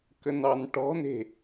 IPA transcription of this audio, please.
k ə n ɑ n ʈ ɔ̤ n e̤

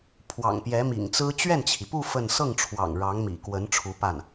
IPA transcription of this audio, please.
pʰ w ɑ̰˨˩ ŋ p j ɛ˧˥ m ḭ˨˩ ŋ t͡s ɹ̩˥ t͡ɕ ɥ ɛ˥˩ n t͡ɕʰ i˩ p u˥˧ f ə˥˧ n s ɤ˥˩ ŋ ʈ͡ʂʰ w ɑ̰˨˩ ŋ ɻ ɑ˧˥ ŋ m ḭ˨˩ k w ə˧˥ n ʈ͡ʂʰ u˧˥ p a˥˩ n

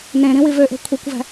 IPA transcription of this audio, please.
n ẽ ɾ ĩ w i v ø ʔ e̤ kʷʰ e kʷ v æ̤

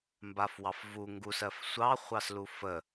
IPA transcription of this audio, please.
m b a f w ɑ f v u ŋ ɡ u s ɜ f sʷ ɑ χʷ ɑ s l u f ə

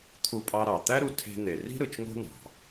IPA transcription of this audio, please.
t̪ʰ u˧ pʼ ɑ˧ ɾ ɑ˩ t̪ æ˥ ɾ u˧ tʰ e̤˧ n̪ e˩ r i̤˥ ɾ ɯ˩ t͡ʃ ŋ o̤˥ n̪ ɑ̤˩

